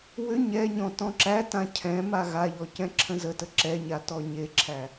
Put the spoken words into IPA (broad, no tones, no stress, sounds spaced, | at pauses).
w ʏ ɲ ɛ ɲ ɔ̃ t ɔ̃ ǁ æ t ã cʰ ɛ̃ m a ɣ a ʎ ɔ c ɛ̃ ǁʰ ə̃ z ə t ə ǁ ɛ ɲ a t ɔ ɲ e ǁʰ æ